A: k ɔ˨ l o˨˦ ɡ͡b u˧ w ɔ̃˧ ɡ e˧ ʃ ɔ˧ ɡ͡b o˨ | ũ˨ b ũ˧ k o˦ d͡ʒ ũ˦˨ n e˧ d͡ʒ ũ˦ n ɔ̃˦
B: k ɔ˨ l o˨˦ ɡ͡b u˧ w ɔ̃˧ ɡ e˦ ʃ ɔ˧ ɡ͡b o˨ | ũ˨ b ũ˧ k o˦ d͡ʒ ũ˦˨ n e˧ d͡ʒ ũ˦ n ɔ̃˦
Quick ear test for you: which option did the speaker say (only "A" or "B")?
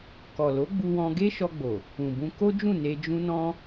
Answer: B